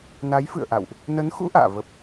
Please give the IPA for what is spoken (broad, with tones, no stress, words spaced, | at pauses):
na˨˦jfɨ̰˧˨ə̯ʔa̰˧˨wʔ | nə˨˦nxṵ˧˥ ʔa̰ː˧˨və˦˥p̚